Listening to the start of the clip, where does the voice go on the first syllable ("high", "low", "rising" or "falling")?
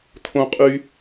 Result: high